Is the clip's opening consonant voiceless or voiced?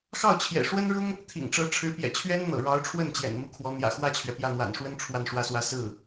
voiceless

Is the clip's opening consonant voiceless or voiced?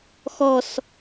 voiceless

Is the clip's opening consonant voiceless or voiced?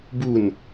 voiced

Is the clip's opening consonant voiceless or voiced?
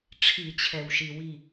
voiceless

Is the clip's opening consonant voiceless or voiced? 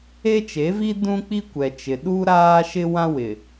voiceless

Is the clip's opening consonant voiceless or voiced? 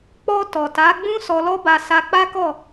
voiceless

